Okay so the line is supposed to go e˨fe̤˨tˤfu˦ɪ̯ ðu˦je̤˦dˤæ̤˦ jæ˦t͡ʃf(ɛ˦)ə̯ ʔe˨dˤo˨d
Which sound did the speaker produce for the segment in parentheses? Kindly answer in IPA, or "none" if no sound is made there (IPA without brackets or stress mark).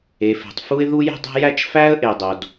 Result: æ˦